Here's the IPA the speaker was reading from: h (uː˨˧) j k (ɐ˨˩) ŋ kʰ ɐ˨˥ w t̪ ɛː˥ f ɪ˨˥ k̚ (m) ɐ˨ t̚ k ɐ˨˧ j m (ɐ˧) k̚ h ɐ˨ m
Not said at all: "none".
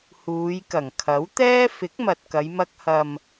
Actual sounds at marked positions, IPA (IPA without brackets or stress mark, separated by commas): uː˨˧, ɐ˨˩, m, ɐ˧